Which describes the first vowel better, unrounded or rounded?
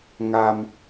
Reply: unrounded